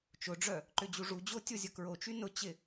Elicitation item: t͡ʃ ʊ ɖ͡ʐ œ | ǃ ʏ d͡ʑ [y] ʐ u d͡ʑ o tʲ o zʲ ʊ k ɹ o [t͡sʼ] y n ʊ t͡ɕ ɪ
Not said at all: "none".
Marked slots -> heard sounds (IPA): u, t͡ʃ

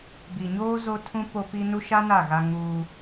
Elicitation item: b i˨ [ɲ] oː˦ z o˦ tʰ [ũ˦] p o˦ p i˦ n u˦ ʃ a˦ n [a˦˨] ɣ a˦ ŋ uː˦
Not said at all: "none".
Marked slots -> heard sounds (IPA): ɲ, ũ˦, a˦˨

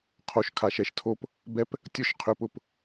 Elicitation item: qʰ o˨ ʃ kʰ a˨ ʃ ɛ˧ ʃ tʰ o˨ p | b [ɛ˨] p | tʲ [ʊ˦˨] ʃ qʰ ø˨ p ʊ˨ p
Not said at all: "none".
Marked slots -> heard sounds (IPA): ɛ˧, ʊ˦˨

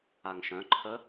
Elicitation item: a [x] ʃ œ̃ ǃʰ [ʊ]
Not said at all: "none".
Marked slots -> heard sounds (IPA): ŋ, ə

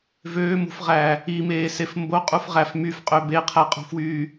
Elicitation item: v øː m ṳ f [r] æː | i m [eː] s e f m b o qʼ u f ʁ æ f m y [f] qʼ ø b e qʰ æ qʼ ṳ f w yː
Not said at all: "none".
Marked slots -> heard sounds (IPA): ʁ, eː, f

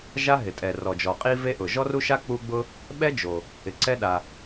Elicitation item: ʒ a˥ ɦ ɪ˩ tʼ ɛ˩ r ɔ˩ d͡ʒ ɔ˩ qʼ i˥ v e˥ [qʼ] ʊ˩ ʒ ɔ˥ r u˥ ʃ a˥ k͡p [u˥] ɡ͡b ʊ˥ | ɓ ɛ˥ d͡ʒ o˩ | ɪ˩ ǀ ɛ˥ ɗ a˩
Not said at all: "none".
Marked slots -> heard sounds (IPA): ʔ, u˥

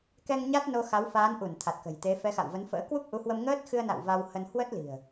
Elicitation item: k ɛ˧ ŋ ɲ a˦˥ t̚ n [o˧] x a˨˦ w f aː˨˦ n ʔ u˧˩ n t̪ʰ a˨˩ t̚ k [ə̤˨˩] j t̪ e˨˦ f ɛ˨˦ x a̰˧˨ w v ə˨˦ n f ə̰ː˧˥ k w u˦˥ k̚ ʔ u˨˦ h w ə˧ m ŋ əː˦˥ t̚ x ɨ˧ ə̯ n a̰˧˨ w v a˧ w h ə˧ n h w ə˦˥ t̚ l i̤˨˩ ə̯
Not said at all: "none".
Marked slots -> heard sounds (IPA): o˧, ə̤˨˩

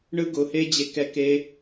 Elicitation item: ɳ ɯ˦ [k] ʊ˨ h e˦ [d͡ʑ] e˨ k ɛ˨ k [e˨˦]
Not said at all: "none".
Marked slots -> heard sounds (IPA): ɡ, d͡ʑ, e˨˦

